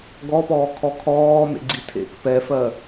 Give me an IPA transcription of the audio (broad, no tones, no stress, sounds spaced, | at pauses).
ɡ ɔ p ɔː kʰ ɔ kʰ ɔː m ḛ ɡ͡ǀ i tʰ ḛ k p ɛ f ɜ